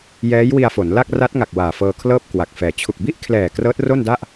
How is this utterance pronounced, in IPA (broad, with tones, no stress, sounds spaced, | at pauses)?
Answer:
j ɛː˦˥ j w i˧ a̯ f o˩˦ n l a˥˩ k̚ r a˦˥ t̚ ŋ a˨˩ k̚ w aː˨˩ f ɤː˧ kʰ l ɤː˥˩ p̚ k w a˨˩ k̚ f ɛː˨˩ t͡ɕʰ u˨˩ k̚ b i˥˩ ʔ kʰ l ɛː˨˩ k r ɤː˦˥ t̚ r o˥˩ n d a˥˩ ʔ